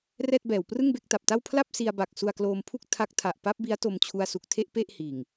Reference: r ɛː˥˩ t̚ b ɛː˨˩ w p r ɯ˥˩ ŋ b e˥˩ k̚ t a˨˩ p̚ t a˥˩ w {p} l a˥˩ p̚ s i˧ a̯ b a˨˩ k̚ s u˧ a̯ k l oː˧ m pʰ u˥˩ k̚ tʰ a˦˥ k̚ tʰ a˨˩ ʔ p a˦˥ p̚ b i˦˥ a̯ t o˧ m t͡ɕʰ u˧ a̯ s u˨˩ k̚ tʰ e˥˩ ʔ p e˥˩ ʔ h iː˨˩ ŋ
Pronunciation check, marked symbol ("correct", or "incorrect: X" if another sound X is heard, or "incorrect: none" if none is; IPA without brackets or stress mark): incorrect: pʰ